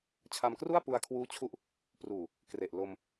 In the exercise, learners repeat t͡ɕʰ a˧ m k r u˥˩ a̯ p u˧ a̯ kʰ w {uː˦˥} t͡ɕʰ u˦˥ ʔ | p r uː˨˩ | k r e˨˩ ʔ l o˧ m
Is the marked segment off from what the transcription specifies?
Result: no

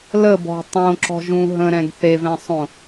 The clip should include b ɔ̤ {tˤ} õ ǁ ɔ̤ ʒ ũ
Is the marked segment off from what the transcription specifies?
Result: no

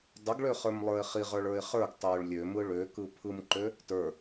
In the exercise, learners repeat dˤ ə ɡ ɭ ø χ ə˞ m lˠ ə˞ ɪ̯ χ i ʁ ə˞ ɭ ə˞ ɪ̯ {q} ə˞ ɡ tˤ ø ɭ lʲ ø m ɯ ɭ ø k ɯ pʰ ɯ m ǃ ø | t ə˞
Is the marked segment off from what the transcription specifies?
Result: yes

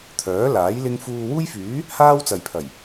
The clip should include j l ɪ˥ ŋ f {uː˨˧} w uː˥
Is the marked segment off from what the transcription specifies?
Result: yes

